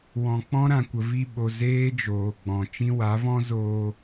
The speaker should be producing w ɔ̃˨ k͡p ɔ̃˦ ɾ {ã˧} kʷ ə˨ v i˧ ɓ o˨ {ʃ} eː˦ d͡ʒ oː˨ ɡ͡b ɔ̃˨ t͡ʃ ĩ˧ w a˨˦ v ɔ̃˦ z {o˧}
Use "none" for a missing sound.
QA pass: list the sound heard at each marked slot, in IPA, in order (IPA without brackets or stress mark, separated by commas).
ã˨, z, oː˧